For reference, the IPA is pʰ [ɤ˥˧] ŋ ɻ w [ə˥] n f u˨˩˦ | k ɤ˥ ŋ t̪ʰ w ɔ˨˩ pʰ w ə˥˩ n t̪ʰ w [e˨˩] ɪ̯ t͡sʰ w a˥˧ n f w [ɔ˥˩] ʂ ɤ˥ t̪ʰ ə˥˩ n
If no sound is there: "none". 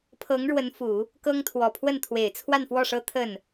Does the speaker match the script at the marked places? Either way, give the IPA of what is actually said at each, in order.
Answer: ɤ˧˥, ə˧˥, e˨˩, ɔ˥˩

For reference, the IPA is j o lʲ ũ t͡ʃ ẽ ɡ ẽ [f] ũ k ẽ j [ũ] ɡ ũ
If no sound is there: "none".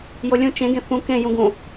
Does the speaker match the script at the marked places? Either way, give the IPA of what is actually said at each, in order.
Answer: f, ũ

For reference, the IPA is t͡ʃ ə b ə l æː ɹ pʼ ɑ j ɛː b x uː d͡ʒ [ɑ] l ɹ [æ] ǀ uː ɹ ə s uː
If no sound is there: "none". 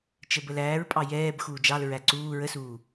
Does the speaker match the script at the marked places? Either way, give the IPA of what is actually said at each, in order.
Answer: ɑ, æ

